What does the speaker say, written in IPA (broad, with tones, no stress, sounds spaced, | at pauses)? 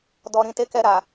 d ɔ˨ ɾ ĩ˨ t e˧ k ɛ˧ ɾ a˨